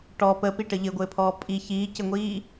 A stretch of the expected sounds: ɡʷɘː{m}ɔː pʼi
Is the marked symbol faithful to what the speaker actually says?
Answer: no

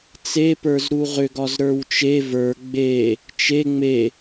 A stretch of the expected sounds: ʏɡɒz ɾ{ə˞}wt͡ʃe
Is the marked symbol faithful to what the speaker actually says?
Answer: yes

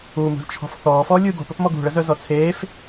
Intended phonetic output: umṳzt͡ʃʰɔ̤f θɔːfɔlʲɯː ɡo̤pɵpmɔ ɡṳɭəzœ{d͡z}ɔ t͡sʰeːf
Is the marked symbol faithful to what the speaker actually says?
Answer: no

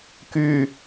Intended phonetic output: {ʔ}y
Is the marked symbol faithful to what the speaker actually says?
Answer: no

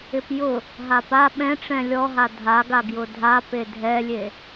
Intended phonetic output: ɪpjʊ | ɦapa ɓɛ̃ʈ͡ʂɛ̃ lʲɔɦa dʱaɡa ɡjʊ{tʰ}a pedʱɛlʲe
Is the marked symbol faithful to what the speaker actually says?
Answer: no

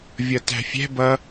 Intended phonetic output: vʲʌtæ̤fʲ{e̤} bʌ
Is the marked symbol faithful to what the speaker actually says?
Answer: no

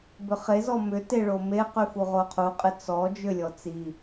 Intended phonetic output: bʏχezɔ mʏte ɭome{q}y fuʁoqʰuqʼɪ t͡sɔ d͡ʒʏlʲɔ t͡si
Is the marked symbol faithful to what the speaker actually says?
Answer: yes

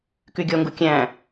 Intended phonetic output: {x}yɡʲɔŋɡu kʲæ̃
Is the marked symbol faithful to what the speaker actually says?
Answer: no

